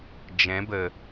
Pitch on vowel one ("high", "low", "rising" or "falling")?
rising